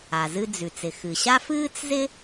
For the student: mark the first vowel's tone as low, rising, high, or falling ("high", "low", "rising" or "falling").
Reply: low